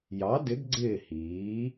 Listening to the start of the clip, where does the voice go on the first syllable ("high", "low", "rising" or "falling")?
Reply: rising